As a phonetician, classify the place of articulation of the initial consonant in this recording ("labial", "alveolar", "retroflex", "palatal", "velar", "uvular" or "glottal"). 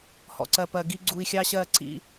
glottal